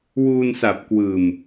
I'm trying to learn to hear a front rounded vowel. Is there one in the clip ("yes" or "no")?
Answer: no